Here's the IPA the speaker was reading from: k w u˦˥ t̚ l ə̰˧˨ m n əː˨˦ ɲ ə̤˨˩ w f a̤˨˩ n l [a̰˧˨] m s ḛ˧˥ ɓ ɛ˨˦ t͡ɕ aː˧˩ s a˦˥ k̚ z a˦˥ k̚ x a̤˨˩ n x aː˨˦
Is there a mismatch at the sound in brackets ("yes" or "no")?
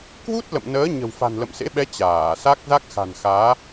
yes